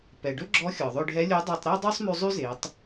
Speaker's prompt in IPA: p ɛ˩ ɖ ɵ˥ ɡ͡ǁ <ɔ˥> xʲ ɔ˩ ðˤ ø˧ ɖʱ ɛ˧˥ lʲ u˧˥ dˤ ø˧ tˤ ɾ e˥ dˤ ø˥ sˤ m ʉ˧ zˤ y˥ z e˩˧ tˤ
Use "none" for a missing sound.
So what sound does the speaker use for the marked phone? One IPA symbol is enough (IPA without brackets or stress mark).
ɔ˧˥